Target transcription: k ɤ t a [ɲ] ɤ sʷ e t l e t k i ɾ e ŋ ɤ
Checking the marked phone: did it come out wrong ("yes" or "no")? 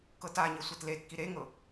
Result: no